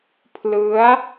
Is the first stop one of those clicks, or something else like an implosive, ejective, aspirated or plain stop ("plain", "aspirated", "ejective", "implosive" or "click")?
aspirated